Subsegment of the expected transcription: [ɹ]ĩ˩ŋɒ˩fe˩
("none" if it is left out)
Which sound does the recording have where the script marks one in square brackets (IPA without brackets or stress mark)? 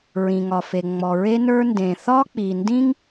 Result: ɹ